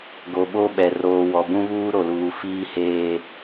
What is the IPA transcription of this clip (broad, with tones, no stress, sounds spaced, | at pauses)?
ɡ o˨ ɓ o˦ ɓ ɛ˨ r oː˨ w ɔ˨ b ũ˦ β uː˦ ɾ o˨ l uː˨ f iː˦ h eː˦